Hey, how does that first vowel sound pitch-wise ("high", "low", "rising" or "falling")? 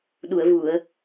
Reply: low